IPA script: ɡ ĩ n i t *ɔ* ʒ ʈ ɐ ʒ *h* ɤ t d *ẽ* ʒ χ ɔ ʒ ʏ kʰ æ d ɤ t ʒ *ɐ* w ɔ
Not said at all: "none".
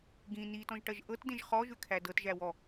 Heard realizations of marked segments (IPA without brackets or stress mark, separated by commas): ɔ̃, ʔ, ẽ, æ